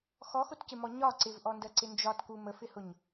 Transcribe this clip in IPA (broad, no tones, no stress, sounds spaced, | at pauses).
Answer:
x ɔ x ʊ t c ɪ m ɔ ɲ ɒ ǀ ɪ v ʔ ɔ n d ɜ ǀ ɪ n d͡ʒ ɒ t k u m ə f ɪ h ʊ ɲ